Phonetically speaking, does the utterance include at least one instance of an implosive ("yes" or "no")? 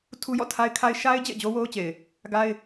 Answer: no